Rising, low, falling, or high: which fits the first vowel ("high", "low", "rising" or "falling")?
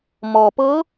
low